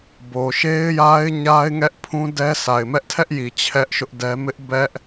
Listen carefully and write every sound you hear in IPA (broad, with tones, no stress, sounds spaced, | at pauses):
b o˨ ʃ e˦ ɪ̯ j a˦ ɪ̯ ɲ a˦ ɪ̯ ŋ ɛ˦ ʔ pʰ ũ˦ d ɛ˦ s a˨ ɪ̯ m ɛ˦ ʔ tʰ ɛ˦ ʔ j i˨ t͡ɕʰ ɛ˦ ʔ ʃ ʊ˦ ʔ d ɛ˦ m ɪ˦ ʔ b ɛ˦ ʔ